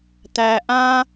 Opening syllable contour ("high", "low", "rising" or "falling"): high